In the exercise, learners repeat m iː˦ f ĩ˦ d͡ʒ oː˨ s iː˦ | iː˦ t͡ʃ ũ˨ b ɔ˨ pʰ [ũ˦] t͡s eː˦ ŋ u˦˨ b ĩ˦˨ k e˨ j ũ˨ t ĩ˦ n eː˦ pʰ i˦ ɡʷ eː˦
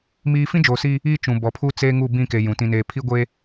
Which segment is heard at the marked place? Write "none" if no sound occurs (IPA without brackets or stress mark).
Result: u˦